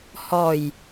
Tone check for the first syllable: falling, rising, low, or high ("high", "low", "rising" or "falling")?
low